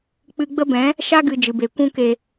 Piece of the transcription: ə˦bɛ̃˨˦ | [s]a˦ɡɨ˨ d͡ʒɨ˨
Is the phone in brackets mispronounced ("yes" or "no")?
yes